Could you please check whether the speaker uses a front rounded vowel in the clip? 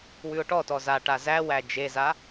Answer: no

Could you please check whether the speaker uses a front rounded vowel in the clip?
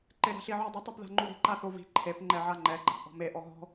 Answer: no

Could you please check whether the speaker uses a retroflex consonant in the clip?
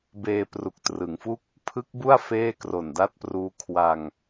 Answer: no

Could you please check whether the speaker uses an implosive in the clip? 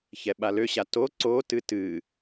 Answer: yes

